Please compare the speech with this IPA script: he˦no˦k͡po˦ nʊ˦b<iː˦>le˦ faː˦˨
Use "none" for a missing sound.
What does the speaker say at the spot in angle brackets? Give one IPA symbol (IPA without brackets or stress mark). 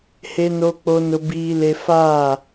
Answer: iː˦